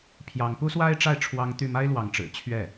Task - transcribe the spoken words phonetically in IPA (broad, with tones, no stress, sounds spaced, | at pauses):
pʰ j ɑ˧˥ ŋ p u˥ s w a˥ ɪ̯ ʈ͡ʂ a˥˩ ɪ̯ ʈ͡ʂʰ w ɑ˥ ŋ t̪ y˥˩ m a˥ ɪ̯ l w ɑ˧˥ ŋ ʈ͡ʂ ɻ̩˨˩ t͡ɕʰ ɥ ɛ˥˩